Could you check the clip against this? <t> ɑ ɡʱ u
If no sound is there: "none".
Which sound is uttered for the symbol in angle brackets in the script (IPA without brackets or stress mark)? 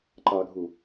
ǃ